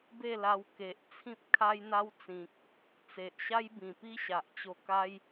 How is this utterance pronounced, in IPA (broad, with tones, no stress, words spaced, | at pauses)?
be˥˧la˧w ke˨ʔ t͡sʰĩ˦p̚kʰa˦jn̪a˦wt͡sĩ˨k̚ | t͡se˨ʔɕa˦jbĩ˨˩pi˦ ɕa˨ʔt͡ɕo˧ka˦j